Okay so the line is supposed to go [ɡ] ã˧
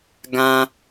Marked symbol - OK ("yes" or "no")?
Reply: yes